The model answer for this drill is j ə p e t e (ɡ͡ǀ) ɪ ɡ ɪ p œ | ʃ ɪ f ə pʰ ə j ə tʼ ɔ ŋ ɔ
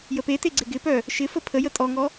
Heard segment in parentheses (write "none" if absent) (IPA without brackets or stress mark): ɡ͡ǀ